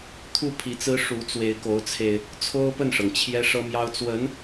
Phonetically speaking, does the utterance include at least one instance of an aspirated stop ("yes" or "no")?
yes